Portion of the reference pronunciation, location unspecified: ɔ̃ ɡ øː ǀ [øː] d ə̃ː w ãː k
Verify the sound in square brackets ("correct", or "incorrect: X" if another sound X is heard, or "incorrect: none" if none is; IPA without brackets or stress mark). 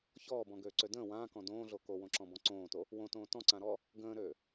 incorrect: ø